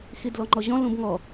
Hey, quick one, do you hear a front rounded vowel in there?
no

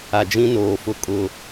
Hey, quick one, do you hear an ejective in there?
yes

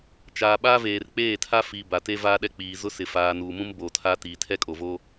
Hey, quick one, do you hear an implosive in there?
yes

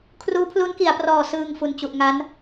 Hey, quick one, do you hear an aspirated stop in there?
yes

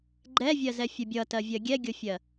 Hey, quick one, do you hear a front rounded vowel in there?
no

